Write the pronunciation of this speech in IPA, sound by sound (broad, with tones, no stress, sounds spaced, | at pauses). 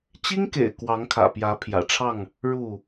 t͡ɕ i˦ ŋ k ḛ˨˩ ɪ̯ k w ɑ˨˦ ŋ kʰ ä̰˨˩ p j ä˨˦ pʰ j ä̰˨˩ ʈ͡ʂʰ ɑ˥˨ ŋ | ɻ u˥˨